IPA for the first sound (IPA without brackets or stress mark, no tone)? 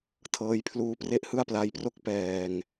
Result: tʰ